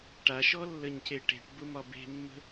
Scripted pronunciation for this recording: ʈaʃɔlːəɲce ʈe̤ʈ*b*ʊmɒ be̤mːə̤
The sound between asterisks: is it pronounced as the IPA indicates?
yes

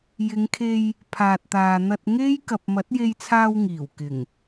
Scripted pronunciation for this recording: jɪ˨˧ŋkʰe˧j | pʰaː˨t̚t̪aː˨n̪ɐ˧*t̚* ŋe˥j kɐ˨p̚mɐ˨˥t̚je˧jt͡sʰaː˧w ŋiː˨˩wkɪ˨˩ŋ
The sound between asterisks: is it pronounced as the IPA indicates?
yes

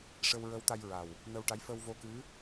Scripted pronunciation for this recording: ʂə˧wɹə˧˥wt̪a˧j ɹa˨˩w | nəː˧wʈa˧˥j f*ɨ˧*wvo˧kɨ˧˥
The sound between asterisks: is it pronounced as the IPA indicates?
no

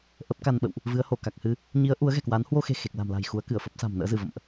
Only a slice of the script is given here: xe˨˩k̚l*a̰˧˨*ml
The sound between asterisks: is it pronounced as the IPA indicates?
no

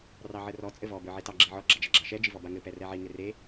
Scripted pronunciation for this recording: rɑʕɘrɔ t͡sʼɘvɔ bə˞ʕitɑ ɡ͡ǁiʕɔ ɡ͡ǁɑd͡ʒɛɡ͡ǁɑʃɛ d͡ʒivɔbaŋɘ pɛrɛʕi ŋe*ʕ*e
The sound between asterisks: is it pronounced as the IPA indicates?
no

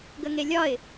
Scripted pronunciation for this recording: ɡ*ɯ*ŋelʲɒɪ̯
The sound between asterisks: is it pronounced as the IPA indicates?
no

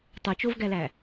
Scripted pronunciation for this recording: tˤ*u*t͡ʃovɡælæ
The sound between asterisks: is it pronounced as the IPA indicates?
yes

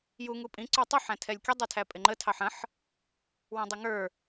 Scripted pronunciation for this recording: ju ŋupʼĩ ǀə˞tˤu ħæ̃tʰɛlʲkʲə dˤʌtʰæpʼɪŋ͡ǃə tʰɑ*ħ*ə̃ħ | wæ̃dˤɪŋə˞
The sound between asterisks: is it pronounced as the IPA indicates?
yes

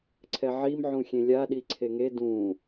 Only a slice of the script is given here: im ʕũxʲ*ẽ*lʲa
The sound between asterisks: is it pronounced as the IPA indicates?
yes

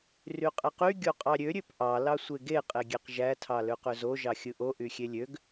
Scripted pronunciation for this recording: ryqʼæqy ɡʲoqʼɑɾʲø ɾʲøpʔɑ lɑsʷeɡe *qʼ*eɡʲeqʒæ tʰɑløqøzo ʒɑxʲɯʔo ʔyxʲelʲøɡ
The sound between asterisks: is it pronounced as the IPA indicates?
yes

